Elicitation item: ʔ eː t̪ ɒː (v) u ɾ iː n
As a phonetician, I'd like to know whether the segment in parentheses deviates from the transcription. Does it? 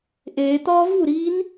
no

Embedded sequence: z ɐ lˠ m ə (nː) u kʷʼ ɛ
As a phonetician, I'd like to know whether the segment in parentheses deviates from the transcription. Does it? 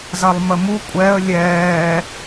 yes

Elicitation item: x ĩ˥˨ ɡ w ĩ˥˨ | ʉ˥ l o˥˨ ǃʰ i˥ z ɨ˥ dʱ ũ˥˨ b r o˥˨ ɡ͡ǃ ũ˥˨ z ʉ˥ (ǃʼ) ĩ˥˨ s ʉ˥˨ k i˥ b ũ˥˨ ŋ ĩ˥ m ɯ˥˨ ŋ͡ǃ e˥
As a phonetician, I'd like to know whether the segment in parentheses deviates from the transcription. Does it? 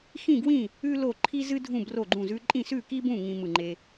no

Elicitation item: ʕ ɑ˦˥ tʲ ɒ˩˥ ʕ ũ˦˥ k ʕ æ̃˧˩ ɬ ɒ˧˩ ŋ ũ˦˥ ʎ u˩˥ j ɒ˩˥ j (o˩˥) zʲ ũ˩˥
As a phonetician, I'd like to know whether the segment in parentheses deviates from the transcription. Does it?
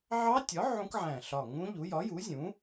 yes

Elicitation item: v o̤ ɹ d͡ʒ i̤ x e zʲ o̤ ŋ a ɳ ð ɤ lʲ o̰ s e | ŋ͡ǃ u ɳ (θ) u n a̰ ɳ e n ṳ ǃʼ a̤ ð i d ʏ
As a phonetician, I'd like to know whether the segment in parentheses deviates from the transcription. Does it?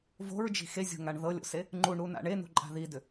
yes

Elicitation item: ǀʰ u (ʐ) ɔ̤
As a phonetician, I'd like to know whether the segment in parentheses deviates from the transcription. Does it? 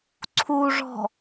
no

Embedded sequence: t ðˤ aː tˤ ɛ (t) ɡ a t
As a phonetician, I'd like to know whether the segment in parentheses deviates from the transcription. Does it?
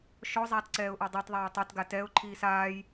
no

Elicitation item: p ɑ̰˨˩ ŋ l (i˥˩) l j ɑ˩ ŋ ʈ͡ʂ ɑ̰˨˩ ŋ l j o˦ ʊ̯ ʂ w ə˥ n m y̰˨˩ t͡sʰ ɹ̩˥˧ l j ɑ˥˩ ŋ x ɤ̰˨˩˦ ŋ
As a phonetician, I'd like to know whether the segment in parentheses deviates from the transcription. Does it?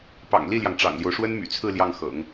no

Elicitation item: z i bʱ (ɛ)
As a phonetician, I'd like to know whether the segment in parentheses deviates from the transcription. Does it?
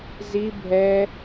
no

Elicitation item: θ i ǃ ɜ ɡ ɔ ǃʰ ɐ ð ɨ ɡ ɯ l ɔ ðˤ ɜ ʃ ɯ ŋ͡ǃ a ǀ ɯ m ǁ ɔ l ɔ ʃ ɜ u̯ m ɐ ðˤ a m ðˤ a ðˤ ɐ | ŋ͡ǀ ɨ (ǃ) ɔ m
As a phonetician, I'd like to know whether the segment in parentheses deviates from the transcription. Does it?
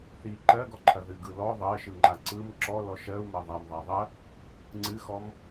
yes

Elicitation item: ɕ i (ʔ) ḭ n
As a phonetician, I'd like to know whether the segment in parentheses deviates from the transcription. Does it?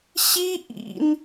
no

